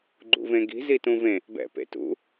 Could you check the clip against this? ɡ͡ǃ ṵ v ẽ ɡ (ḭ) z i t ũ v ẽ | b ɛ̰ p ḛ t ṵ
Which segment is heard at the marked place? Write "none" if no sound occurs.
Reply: i̤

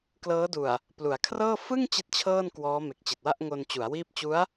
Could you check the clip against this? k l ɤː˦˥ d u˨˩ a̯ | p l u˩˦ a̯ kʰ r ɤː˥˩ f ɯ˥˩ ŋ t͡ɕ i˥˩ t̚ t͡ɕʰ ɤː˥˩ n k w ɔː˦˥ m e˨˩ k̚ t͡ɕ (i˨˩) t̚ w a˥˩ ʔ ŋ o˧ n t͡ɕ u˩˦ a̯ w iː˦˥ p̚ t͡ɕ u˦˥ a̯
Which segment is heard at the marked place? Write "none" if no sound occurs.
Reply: i˨˩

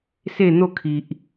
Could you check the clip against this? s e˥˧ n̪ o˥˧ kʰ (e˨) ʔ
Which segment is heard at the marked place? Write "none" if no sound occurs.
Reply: i˨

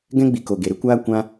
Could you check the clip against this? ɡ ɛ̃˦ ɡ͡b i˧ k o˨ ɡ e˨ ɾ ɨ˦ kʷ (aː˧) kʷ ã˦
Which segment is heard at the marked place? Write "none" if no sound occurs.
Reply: aː˦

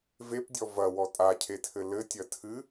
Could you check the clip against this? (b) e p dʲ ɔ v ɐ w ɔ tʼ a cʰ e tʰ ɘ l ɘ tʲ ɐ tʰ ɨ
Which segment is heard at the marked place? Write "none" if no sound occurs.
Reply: v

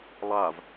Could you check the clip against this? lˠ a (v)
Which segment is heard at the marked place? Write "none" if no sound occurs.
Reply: v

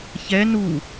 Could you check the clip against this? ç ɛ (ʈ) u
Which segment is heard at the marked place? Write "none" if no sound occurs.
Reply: n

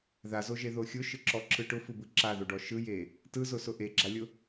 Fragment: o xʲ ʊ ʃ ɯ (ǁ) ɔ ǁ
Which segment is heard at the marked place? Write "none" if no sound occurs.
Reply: ǁ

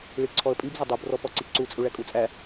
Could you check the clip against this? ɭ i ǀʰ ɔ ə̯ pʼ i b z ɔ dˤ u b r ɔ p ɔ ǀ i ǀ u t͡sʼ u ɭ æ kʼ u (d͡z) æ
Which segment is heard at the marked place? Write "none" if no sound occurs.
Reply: t͡sʼ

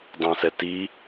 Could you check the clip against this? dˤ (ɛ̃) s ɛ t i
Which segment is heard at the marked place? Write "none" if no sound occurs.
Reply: ɛ̃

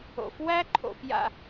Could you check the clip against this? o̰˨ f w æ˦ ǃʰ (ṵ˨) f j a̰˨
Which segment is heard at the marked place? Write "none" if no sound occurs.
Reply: o̰˨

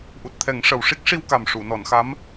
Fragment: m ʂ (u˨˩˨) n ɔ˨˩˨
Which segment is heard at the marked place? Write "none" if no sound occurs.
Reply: u˨˩˨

